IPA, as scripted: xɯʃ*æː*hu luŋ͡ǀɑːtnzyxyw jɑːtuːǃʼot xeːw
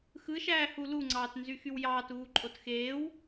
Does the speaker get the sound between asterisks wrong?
no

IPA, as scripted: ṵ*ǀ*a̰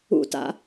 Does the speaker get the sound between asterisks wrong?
yes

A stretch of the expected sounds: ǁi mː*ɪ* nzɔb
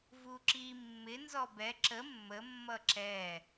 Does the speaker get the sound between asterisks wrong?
no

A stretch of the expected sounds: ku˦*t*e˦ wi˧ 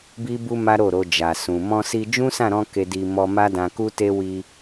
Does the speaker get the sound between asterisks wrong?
no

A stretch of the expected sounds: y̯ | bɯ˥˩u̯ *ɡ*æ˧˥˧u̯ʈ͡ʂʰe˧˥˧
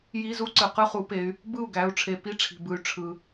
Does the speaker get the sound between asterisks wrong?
no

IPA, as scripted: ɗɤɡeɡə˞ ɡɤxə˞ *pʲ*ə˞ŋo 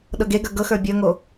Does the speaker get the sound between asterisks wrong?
yes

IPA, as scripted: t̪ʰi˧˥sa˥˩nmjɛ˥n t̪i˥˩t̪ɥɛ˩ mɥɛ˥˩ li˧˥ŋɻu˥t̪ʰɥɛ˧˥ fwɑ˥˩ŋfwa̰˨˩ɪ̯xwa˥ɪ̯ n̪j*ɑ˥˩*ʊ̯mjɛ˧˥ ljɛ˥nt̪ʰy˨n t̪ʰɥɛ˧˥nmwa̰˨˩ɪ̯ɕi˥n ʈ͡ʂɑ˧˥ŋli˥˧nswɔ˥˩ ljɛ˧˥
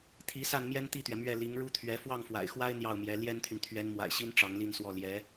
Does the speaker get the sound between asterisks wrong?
no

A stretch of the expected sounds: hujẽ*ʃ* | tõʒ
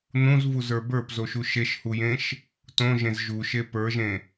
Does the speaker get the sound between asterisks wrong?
no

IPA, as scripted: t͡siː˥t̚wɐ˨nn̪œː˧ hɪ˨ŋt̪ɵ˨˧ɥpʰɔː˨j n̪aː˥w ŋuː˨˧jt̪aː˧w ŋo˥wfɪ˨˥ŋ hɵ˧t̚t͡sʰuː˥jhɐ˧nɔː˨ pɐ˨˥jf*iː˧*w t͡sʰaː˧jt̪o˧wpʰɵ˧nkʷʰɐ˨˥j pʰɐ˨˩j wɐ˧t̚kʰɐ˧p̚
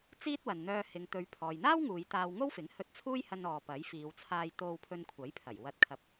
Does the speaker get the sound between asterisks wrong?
yes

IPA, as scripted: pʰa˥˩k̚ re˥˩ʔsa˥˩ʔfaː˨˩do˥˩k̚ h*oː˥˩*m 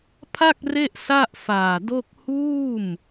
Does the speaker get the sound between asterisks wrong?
yes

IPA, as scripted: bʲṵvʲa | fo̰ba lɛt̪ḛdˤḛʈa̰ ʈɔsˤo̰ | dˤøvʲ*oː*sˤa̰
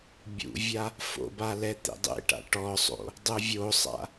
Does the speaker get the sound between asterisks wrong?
yes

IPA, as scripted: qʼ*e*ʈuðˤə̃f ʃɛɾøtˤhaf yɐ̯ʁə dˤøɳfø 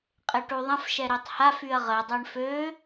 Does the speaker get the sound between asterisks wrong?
no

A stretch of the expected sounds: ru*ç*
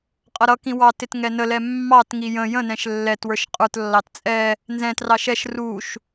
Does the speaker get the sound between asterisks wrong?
yes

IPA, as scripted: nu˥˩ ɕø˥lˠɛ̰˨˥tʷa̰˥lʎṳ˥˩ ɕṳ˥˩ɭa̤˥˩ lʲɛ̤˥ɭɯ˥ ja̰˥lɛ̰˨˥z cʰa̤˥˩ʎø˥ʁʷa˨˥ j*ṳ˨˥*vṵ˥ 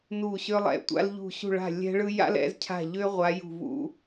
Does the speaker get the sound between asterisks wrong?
yes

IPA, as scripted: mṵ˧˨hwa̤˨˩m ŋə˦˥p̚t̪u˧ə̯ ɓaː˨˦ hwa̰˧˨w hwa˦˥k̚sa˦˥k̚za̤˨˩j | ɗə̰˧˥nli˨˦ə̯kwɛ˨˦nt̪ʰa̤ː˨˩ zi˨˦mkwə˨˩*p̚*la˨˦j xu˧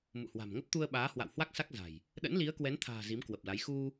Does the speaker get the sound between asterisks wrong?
no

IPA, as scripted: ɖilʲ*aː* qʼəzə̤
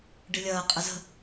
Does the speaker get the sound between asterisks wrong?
yes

